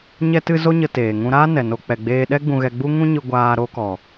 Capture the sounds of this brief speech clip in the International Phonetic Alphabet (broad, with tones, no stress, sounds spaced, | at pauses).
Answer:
ɲ ɛ˦ t ɨ˦ z o˦ ɲ ə˧ t eː˨ ŋ ũ˧ ɾ aː˦ n ɛ˨ n o˧ k͡p ɛ˨ ɡ͡b eː˧ ɗ ɛ˦ ɡ͡b ũ˧ ɣ ɛ˧ ɡ͡b u˦ ŋ ũ˦ ɲ ɨ˧ ɡʷ aː˧ ɾ o˧ k ɔ˨